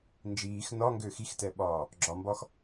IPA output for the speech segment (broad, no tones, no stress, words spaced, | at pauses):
nd͡ʒiːx nɒŋɡø xixtɛɓɒː | ɡ͡ǁɒmbɒx